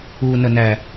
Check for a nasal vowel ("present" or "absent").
absent